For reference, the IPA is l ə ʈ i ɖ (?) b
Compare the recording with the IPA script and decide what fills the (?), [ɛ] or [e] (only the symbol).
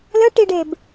e